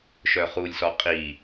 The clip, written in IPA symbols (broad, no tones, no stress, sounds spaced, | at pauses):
ʃ œ χ u lʲ s ɔ qʼ i